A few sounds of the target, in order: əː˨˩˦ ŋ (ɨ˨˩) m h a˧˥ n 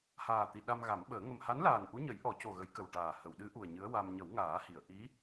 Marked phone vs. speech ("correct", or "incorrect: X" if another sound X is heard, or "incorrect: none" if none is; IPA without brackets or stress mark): incorrect: ə˨˩